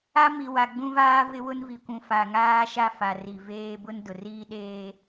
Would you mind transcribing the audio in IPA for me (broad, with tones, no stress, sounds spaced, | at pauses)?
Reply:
a˦ m i˨ w a˨ ɡ͡b ũ˦ v aː˦ v ɪ˦ w ʊ˦ n v i˨ kʷ ũ˨ f a˨ ŋ aː˦ ʃ a˦ f a˨ r i˨ v eː˦ b ʊ˦ n d ʊ˨ r iː˦ ɗ eː˦